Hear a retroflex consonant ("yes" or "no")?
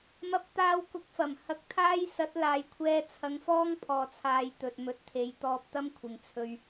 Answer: no